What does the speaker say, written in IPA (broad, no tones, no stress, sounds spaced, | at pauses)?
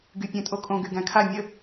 ɡ y pʲ æ̃ tʼ o kʼ õ ɡ y ɡ æ̃ kʰ a mʲ ə